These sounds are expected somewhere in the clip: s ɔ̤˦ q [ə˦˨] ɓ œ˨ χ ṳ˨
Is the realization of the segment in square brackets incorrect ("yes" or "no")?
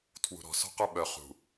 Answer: yes